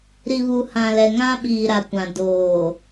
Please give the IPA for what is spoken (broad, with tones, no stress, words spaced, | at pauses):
ɾi˨βu˨ hã˨lɛ˨ ŋã˦ɓiː˨ɾa˨kʷã˨ doː˨